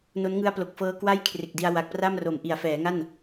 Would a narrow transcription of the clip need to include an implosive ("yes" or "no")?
no